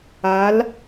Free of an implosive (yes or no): yes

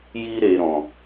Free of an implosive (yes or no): yes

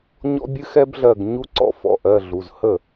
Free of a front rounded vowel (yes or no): yes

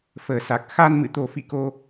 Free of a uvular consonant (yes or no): yes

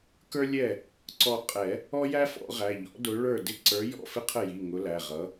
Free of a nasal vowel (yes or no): yes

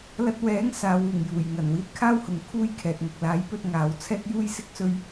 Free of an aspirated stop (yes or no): no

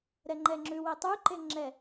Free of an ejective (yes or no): yes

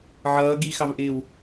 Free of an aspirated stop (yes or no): yes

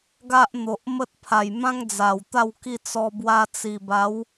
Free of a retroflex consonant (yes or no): yes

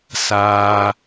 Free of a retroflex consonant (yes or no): yes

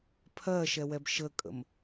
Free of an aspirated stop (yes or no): no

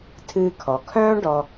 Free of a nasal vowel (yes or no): no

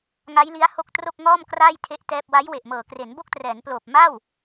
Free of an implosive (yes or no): yes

